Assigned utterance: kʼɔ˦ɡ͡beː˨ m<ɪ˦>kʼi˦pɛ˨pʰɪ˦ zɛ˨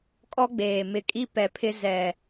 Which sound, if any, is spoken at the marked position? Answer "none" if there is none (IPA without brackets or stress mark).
ɪ˨